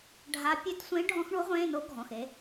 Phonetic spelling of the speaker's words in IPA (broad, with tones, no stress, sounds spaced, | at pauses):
ɖʱ a˧˥ pʲ ø˧˥ t sʷ ẽ˧˥ ɖʱ ɔ̃˧˥ x ɳ u˧˥ ʁʷ ẽː˧˥˧ n o˧˥ ɡʱ ɔ̃˩˧˩ x e˩˧